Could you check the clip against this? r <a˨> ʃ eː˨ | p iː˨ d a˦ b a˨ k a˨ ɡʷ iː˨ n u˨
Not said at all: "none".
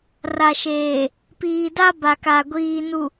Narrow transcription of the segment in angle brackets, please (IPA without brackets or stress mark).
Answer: a˨